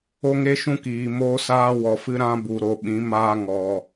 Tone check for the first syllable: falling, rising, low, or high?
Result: high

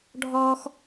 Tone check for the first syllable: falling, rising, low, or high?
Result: high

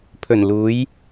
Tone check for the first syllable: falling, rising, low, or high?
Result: low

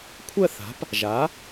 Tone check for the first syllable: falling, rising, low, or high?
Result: falling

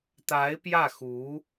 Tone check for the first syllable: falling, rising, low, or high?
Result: rising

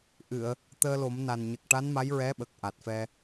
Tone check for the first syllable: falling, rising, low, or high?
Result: low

